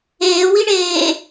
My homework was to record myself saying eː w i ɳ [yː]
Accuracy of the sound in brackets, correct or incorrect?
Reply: incorrect